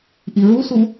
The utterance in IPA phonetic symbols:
ʔ i ɹ u s u

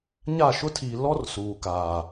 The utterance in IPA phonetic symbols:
ɲ a˦˨ ʃ ʊ˦ tʰ iː˨ l ɔ˦ r s uː˨ k aː˨

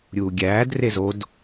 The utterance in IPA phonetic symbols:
ɾʲ uː ɡʲ æː d r e z o d

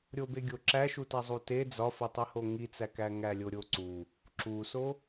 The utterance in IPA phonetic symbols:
ɾʲ o b e ɡʲ o ǁ æ ʃ u t æ zˤ u t e d͡z ɒ f i tˤ i h o ŋ i t͡s æ k æ ŋ æ lʲ o ɾʲ o ǀ u | ǁ u s o

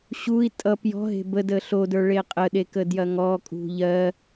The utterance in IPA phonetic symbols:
ɕ u i̯ tʼ ʌ p j ɔ̤ ɦ e̤ b ə d ə ɬ o d ə˞ ɭ e qʼ ə ɗ e k ə d j ɐ ŋ ɔ kʼ ṳ ʎ ɜ

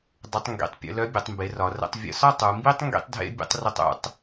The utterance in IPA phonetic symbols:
dˤ ə˩˧ tˤ ŋ ɡ ḭ˩ tˤ pʲ ə̰˧ l œ˧˥ bʲ ə˩˧ tˤ m b e˩˧ r ɒ˩˧ r ə̰˧ tˤ vʲ ə̰˧ s ɒ˥ tˤ u˩˧ m b i˥ tˤ ŋ ɡ ḭ˥ tˤ dʱ ḛ˥ bʲ ə̰˥ tˤ r ʊ˧ tˤ ṵ˩˧ tˤ

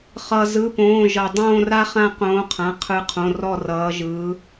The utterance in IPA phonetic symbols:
χ ʌ˩ z ɯ˩˧˩ p õː˩˧˩ ʒ ʌ˩ dˤ õː˦˨ r a˦ χ ã˦˨ q õː˨˦ qʰ ã˩˧˩ qʰ ɯ˨˦ qʰ õ˩˧˩ r ɔ˦˨ r ʌː˨˦ ʒ ɯː˨˦

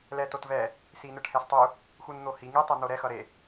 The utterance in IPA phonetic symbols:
l ɛ t o t v ɛ | s i n ɯ ʈ h ɛ s tˤ u | x u n n̪ o h i ŋ i tˤ ɛ n̪ o ɾ ɛ x ʌ ɾ e

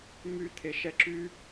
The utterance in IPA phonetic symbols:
m y t̪ʰ e ʃ ɛ ǁ y

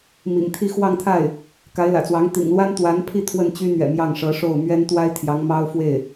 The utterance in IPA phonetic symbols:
m ḭ˨˩ ŋ t̪ʰ i˥˧ x w ɑ˥˧ ŋ t̪ʰ a˥˩ ɪ̯ | k a˧˥ ɪ̯ l ä̰˨˩ t͡s w ɑ˧˥ ŋ t̪ ḭ˨˩ ŋ l w a˥ n t̪ w a˧˥ n pʰ i˥˧ t̪ʰ w ə˥˩ n t͡ɕ y˥ n̪ ɥ ɛ̰˨˩ m j ɑ˥˩ ŋ ʂ ɤ˧˥ ʂ o˥˩ ʊ̯ m ɥ ɛ˥ n t̪ w a˥ ɪ̯ t̪ʰ j ɑ˧˥ ŋ m ɑ˥ ʊ̯ f w e˥˩ ɪ̯

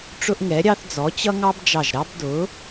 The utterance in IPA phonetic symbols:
ʈ͡ʂ ʊ˦ ʔ ŋ ɛ˨˥ ɾʲ ɑ˦ θ d͡z ɔ˨˥ t͡ɕ ʌ˦ ŋ ɑ˦ b d͡ʒ ɑ˧˩ ʒ ɾ ɑ˦ b d ʊ˨˥

